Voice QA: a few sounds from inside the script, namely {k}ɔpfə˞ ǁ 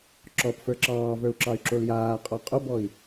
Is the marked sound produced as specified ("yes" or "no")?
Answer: no